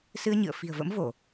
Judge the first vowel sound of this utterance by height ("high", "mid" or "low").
high